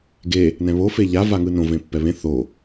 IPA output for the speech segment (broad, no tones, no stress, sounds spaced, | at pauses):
ɡ e | n ɛ̃ β o f e ʎ a v a ŋ ɯ n õ v ẽ pː ɛ β ẽ θ o